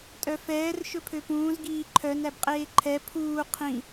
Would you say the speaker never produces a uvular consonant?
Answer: no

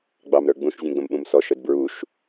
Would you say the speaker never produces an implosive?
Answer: no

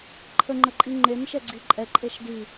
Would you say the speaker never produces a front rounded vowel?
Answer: yes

